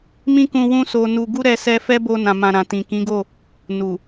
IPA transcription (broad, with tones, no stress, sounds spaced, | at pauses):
m ĩ˦ k ũ˧ w ũ˦ s o˧ n u˧ ɡ u˦ ɾ ɛ˧ s ɛ˧ f ɛ˦ b o˧ n ã˨ m ã˨ ɾ ã˨ t ĩ˨ k ĩ˨˦ ɡ o˦˨ | n u˨